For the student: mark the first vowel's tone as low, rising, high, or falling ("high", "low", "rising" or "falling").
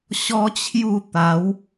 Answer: high